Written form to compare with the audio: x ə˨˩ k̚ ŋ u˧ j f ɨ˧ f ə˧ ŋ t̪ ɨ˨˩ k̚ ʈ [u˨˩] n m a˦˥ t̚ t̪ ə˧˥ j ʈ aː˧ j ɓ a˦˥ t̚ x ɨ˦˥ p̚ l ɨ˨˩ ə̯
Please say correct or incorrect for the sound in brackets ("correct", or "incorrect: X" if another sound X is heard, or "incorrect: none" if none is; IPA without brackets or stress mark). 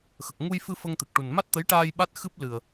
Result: correct